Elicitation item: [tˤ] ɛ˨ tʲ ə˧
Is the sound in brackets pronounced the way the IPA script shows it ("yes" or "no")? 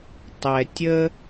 yes